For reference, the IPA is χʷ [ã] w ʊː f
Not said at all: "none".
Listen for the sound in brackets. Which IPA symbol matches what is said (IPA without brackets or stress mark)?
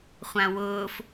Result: ã